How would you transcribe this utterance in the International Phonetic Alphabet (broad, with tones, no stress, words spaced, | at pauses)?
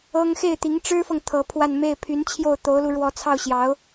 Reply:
ɤ˥ŋ xe˥˩ɪ̯t̪i˧˥ŋʈ͡ʂɻ̩˥fɤ˨ŋ t̪ʰɤ˧˥pʰwa˥˧n me˥˩ɪ̯pʰy˧˥nt͡ɕʰjo˥˩ʊ̯ t̪o˧˥ʊ̯lu˧ ɻwɔ˧˥t͡sʰɑ˥˩ʊ̯ɕjɑ˧˥ʊ̯